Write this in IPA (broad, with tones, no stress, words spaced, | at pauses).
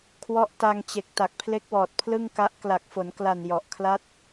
kʰwɔ˦˥ʔ ta˧ŋt͡ɕe˨˩k̚ ta˨˩k̚pʰle˦˥k̚wɔː˨˩t̚ pʰlɯ˥˩ŋka˦˥ʔ kla˨˩k̚fo˩˦nkla˨˩n jɔ˨˩ʔkʰla˦˥t̚